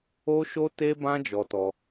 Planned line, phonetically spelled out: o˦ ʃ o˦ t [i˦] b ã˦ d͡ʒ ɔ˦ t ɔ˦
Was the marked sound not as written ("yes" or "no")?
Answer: yes